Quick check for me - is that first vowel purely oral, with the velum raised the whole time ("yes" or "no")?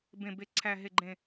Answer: no